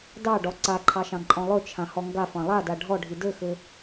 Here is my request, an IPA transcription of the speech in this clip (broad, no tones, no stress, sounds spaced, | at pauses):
d ɑ ɖ ɔ ǀ a ǃʰ ɑ ʃ ɑ̃ ǃʼ ɔ̃ lˠ ɵ t͡ʃʰ ã h ɔ ŋ ɡ a f ɑ̃ lˠ a d a ɖʱ ɔ ɖʱ i d ɘ x ɘ